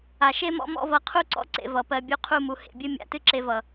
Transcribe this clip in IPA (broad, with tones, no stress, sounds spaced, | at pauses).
a˨ ʃ e˦ m ɔ̰˦ m ɔ̰˦ v ʌ˨˦ qʰ u˦ ǀ ɔ̰˦ ǀ ḛ˨ v ʌ˨ p ɜ˧ bʲ u˧ qʰ u˦˨ m u˨ h ḛ˨ bʲ ɨ˦ mʲ a̰˨ t ɨ˦ ǁ e˧ v ʌ˨